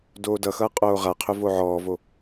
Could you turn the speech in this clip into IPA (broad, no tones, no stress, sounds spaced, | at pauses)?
d oː d ʌ x ʌː qʼ oː ʁ a qʰ ʏ v o ʕ ɔː v o